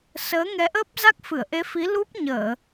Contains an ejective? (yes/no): no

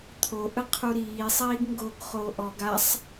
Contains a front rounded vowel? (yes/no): no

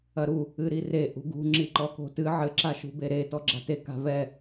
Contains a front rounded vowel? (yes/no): no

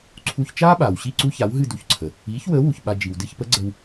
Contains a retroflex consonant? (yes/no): no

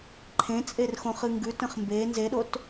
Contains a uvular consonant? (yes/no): yes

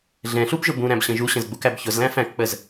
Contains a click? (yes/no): no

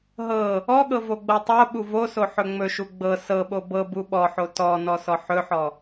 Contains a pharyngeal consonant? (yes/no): yes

